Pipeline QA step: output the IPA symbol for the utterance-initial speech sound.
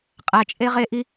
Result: qʼ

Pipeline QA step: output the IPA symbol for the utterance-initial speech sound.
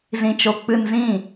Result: z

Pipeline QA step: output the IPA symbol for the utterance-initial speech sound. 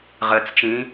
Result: ʁ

